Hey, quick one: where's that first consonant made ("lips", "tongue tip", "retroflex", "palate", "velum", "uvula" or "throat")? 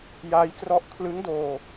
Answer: palate